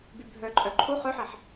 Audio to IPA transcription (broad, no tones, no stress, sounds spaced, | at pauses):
b y bʱ œ ǃʼ œ ǃʰ u χ œ ħ ɛ ħ